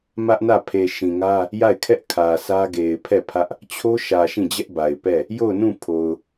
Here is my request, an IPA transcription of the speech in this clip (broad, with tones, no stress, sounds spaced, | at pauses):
m ä˦ ʔ n ä˦˨ pʰ e˨ ʃ ĩ˨ ŋ ä˦ | j a˦˨ ɪ̯ kʰ ɛ˦ ʔ kʰ ä˨ sʰ ä˦ ɡ e˨ ɪ̯ pʰ ɛ˦˨ pʰ ä˦ ʔ | t͡ɕʰ o˦ ʃ ä˨ ʃ ĩ˦˨ d͡ʑ ɛ˦ ʔ b a˨ ɪ̯ p ɛ˦˨ | j o˦˨ ʊ̯ n ũ˦˨ pʰ o˨ ʊ̯